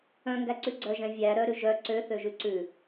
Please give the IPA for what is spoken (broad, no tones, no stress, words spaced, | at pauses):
œ̃ŋɡæǀʉ ɡ͡ǀœʒɛ̃ vʲæ ɾœɾʉ ʒœ ǀøθøʒʉ ǀʉ